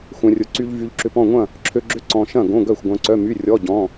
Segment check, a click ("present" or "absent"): present